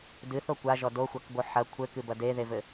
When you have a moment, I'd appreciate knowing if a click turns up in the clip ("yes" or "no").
no